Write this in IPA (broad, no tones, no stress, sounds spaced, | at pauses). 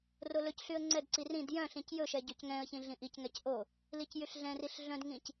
r o l ɵ c ɬ y ə̯ ŋ͡ǀ ɛ d ǀ i r ĩ d j œ̃ ɬ ĩ c j ɵ ʃ ɛ ɟ ø c ŋ ɛ̃ ə̯ ç ĩ ɮ ĩ ʔ i c ŋ ɛ c ʔ o | l i c j y ɬ ɮ ɛ̃ r i ɬ ɮ œ̃ d ŋ ĩ c